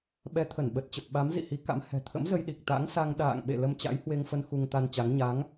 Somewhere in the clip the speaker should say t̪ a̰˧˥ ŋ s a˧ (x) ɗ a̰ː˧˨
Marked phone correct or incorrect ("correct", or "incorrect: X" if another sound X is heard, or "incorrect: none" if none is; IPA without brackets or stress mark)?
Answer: incorrect: ŋ